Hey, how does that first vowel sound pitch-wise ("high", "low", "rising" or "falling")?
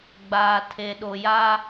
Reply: low